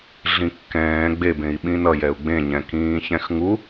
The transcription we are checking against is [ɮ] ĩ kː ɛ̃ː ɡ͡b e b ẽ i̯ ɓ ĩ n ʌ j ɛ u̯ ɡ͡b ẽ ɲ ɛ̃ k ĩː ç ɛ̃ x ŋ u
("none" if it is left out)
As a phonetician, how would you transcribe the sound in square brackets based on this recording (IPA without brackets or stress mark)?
ɮ